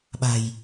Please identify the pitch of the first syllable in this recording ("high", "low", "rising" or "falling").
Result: low